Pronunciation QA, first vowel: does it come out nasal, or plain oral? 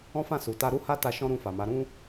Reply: nasal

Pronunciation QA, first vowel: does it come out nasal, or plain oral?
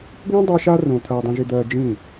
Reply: nasal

